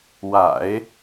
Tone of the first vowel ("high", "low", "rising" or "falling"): low